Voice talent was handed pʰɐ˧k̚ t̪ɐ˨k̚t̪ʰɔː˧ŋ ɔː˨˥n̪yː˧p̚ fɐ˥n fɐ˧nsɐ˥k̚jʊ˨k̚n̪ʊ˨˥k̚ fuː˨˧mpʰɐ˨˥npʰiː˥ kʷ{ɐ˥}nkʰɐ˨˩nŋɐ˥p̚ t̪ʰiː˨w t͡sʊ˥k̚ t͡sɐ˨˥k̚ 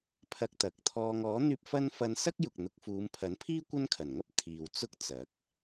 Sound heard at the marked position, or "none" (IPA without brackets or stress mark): ɐ˥